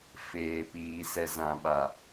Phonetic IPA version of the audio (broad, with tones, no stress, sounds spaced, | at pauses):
f eː˨ p iː˨ s ɛ˨ z ã˨ ɓ a˨